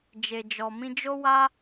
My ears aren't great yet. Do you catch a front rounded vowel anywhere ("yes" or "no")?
no